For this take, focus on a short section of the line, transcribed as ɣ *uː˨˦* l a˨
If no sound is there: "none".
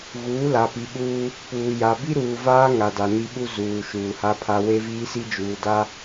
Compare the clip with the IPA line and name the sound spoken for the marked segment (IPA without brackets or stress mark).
uː˨˦